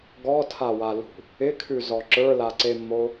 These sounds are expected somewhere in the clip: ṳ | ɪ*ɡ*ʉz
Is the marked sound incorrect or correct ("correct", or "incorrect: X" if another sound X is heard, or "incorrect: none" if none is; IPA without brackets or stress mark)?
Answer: incorrect: kʰ